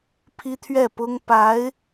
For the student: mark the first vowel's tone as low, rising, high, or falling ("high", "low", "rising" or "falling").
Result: high